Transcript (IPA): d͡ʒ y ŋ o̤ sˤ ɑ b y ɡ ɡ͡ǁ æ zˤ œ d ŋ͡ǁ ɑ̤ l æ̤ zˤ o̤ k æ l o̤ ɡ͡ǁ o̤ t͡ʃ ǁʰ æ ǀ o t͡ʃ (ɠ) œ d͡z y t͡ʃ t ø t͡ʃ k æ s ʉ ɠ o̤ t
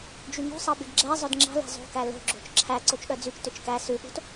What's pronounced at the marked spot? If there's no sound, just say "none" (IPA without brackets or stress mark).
ɠ